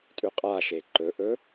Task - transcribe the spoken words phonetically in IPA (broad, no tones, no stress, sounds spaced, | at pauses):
tʼ ʉ qʼ a ʃ e ǃ ɵ ʔ ɵ